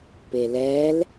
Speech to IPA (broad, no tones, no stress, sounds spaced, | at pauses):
p e l ɛ l